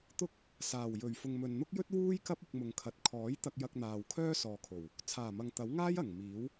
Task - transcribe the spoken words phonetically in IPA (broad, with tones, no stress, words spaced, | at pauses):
t̪ʊ˥k̚ | saː˨˩wjɵ˨˩ɥ fʊ˨ŋmɵ˨nn̪ʊ˥k̚jɵ˥t̚ wuː˥jkɐ˥p̚ ʊ˧k̚mʊ˨ŋkʰɐ˨˥t̚ kʰɔː˨˥j t̪ɐ˧k̚jɐ˧k̚n̪aː˨w kʰœː˥sɔː˨kʰo˨˩w | t͡sʰaː˨˩mɐ˨ŋ t̪ɐ˨˥w ŋaː˥jɐ˨˩ŋ miː˨˥w